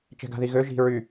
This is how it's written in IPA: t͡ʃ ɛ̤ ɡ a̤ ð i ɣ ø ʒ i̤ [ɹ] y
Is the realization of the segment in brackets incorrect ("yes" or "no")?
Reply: no